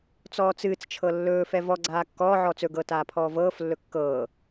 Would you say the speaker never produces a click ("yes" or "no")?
no